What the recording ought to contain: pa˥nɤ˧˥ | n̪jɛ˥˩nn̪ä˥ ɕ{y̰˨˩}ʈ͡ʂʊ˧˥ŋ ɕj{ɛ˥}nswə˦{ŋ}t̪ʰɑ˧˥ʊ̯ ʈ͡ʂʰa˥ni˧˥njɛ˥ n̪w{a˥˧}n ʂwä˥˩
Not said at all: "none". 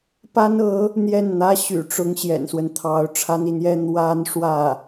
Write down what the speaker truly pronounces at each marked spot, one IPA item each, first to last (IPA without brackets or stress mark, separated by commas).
y̰˨˩, ɛ̰˨˩, n, a˥